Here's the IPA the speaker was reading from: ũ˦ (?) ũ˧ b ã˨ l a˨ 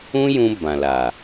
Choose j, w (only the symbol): j